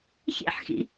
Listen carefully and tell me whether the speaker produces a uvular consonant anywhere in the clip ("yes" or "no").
no